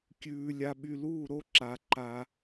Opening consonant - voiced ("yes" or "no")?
no